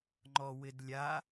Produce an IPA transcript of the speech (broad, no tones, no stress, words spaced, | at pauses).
ŋ͡ǃɔwɪdlʲa